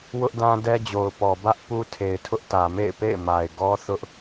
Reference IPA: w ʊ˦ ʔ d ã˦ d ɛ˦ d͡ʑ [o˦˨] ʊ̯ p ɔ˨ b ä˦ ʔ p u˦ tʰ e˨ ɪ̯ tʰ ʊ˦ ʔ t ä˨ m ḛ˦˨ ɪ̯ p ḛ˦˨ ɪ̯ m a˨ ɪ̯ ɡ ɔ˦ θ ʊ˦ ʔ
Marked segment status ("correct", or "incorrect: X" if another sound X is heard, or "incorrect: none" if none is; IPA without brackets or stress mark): incorrect: o˨